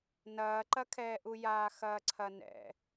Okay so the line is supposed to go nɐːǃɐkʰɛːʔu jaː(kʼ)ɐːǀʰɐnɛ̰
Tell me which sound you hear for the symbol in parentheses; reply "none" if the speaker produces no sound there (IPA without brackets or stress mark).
x